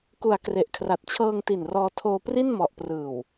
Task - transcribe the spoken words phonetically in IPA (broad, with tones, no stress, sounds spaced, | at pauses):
k u˩˦ a̯ k r e˨˩ ʔ kʰ r a˨˩ t̚ t͡ɕʰ ɤː˧ ŋ t i˨˩ n r ɔː˧ tʰ oː˧ p r i˥˩ n m ɔ˨˩ ʔ p r ɯː˨˩ w